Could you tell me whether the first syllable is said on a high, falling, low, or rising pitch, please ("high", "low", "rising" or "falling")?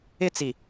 high